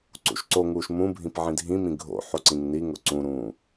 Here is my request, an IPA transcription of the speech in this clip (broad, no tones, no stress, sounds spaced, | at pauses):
ǀ ṵ ʃ ǀ o ŋ uː ʃ m ũ bʱ ĩ p ʕ ĩ dʱ ĩ m ĩ ɡʱ o̰ ħ o ǀ ĩ ŋ n i ŋ ʊ ǀ ũ ɾ ũː